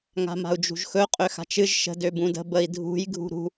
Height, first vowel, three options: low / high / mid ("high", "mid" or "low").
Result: low